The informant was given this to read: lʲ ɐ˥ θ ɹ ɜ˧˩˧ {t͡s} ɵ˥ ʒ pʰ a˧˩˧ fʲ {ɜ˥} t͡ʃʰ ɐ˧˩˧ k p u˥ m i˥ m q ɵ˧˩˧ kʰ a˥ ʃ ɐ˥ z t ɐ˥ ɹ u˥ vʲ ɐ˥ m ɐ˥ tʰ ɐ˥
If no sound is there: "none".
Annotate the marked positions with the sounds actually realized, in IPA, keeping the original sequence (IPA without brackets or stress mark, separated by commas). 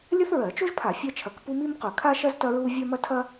t͡ʃ, ɜ˥